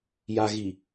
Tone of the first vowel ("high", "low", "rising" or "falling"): low